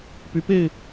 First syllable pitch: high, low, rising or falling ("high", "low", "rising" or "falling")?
rising